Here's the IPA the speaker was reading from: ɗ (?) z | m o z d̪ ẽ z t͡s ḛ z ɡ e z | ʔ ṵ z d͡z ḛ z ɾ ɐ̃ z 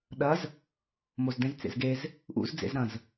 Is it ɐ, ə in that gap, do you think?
ɐ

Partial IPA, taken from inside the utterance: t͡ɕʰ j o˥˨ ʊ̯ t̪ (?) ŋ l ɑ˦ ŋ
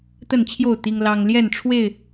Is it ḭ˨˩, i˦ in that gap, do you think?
i˦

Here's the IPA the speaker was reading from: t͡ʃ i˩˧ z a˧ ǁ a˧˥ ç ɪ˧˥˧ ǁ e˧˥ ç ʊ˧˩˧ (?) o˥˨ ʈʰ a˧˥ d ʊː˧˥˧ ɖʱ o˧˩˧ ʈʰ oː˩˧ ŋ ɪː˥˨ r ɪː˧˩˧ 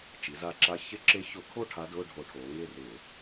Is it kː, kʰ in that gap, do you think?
kʰ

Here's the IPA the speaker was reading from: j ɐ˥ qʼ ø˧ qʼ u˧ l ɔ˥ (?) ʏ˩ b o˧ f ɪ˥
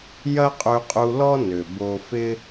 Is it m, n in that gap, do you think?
n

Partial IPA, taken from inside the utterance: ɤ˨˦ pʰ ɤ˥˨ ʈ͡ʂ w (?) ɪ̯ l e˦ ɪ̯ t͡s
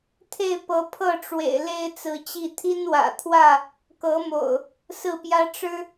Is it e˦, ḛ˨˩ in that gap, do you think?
ḛ˨˩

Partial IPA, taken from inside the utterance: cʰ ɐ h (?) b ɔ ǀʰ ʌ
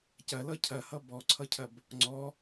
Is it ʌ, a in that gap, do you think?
ʌ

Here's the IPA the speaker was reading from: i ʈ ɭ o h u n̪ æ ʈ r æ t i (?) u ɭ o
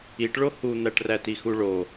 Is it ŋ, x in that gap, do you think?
x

